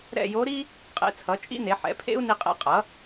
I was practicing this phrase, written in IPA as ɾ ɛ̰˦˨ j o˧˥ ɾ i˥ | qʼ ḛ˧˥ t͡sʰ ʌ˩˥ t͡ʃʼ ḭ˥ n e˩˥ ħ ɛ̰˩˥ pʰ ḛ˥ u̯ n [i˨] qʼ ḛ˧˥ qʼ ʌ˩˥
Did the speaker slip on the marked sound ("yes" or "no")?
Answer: yes